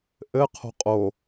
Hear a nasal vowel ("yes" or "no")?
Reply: no